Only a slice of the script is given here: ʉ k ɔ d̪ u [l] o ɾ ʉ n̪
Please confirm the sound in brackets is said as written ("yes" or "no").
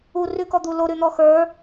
yes